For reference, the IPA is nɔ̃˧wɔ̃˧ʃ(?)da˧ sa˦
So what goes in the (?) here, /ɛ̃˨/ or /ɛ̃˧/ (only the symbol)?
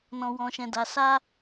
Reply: ɛ̃˧